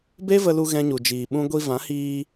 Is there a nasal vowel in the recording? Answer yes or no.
yes